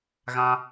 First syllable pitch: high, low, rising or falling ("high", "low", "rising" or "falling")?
high